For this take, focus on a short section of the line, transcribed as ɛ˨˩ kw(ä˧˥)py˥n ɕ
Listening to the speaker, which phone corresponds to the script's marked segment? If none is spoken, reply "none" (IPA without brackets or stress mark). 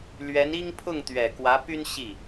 ä˧˥